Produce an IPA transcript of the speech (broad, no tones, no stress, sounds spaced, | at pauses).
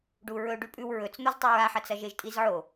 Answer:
ɖ u ɹ ɵ ɖ ʉ pʼ ʉ w ɹ ɵ t͡s n̪ o z tˤ u ɹ a ħ ɐ t͡s ɐ ʒ e ʒ tʼ i z ʕ o